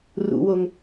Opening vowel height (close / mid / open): close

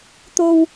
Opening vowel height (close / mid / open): mid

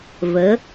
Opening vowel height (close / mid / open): mid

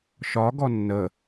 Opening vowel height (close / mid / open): open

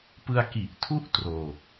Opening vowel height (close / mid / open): close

